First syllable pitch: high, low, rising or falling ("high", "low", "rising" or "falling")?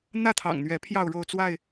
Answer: falling